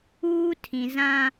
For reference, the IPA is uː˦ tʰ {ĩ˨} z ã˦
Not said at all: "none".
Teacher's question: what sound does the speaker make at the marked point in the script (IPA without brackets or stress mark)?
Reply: ĩ˨